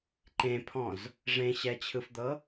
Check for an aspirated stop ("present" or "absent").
present